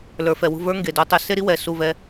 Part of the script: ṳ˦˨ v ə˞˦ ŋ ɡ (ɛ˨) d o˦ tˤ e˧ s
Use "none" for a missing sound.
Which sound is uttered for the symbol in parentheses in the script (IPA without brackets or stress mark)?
e˨